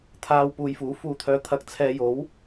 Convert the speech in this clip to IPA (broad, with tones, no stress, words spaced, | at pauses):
t̪ʰaː˨w puː˨jfuː˨˥ fuː˨t̪ʰœː˨˧ t̪ʰɐ˨k̚t͡sʰɛː˨jo˨˥w